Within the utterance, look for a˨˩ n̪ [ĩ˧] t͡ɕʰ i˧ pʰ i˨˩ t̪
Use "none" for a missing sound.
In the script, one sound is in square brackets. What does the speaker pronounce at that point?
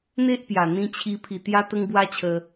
ĩ˧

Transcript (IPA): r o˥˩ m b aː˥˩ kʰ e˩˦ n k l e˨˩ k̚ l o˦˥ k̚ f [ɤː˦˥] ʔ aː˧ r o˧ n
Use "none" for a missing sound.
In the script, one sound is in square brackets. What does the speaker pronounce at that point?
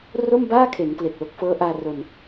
ɤː˦˥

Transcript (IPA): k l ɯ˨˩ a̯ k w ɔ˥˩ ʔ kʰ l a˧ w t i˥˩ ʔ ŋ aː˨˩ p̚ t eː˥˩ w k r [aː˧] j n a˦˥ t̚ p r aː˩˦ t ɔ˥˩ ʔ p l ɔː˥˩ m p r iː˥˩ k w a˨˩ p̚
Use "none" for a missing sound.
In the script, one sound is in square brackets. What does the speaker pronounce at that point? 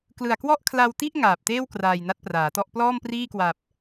aː˧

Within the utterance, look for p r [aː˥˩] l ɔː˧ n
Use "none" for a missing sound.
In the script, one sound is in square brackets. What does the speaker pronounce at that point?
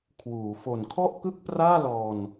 aː˥˩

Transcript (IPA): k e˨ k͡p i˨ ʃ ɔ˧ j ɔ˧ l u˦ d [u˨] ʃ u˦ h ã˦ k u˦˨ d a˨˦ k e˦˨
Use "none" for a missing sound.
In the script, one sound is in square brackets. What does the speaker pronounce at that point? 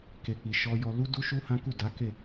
u˦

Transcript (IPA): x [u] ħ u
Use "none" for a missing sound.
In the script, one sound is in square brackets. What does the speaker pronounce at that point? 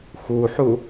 u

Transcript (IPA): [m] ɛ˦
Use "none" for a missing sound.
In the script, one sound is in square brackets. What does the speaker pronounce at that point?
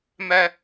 m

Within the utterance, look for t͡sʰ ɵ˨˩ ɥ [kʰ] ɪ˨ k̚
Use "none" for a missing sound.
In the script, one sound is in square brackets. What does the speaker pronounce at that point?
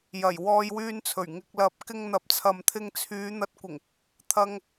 ŋ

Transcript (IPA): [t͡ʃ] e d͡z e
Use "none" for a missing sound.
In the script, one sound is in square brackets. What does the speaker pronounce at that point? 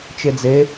t͡ʃ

